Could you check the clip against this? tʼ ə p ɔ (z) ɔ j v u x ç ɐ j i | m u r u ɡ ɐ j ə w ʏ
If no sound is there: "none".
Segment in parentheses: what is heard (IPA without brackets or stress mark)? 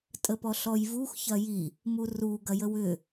ɬ